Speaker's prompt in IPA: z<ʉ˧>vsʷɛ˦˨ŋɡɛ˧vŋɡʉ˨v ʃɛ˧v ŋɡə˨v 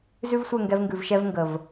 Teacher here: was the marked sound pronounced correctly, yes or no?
no